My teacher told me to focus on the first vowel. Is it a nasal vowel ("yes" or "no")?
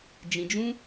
yes